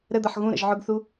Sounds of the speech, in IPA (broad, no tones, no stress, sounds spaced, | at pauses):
ɾ ə d̪ ʌ ħ ɣ ũ ɾ ə̰ ʒ ʕ ʊ ɡ θ u